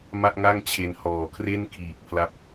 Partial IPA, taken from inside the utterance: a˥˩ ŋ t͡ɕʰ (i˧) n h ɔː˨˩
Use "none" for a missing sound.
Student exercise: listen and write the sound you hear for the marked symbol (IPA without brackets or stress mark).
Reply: e˧